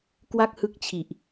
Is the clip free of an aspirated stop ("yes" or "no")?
no